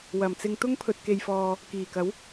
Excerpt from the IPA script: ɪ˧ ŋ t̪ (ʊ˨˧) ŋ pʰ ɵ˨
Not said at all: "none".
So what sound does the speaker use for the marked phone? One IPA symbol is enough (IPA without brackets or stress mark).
ʊ˥